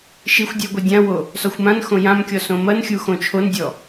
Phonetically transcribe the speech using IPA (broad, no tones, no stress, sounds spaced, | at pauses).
ʃ i xʷ dʲ ɐ ɡʷ i dʲ ã w o | s ɔ xʷ m ã n x õ j ã m kʲ ɔ s õ m ɐ n xʲ u x õ t͡ʃʰ o n dʲ ɔ